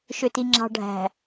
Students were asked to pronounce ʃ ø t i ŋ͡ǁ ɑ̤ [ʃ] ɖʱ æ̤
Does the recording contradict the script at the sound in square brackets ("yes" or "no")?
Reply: yes